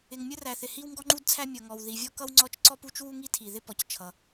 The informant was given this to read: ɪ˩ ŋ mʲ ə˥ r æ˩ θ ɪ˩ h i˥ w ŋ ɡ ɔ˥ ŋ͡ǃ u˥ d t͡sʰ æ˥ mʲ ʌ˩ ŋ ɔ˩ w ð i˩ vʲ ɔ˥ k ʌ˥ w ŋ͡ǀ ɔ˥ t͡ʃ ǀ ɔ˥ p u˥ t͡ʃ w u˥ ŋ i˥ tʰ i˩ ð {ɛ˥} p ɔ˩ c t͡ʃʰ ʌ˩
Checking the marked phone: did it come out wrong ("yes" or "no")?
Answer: yes